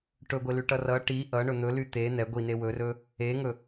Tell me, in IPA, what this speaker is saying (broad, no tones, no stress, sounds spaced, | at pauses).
ʈ ɵ ɡʷ e l y ʈ ʌ r ʌ ʈ i ʔ ʌ ɳ ɵ n̪ ɵ l y t̪ e n̪ ɛ ɡʷ i n e w ɵ r ɵ | e ŋ ɵ